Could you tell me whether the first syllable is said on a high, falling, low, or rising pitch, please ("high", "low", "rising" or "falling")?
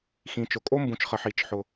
low